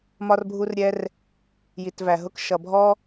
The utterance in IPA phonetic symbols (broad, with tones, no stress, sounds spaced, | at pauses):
m ɒ˦ r bʱ u˦ r ɾʲ ɛ˦ r | j i˨ t v æ˨ ɦ ʊ˦ k ʃ ʌ˨ bʱ ɔ˦